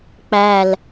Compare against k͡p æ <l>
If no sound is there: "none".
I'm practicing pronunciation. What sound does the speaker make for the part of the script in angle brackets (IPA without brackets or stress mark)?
l